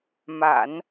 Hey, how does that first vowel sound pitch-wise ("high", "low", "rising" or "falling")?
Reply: low